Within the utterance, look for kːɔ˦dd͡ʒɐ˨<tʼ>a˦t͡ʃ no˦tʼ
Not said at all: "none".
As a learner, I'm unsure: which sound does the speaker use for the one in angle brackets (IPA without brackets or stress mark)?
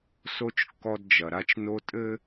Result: ɾ